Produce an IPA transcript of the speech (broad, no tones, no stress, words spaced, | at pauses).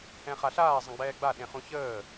ɛ̃χaɬaː zˤə̃ɡ͡bɛːɡ͡ba ɗẽχũçəː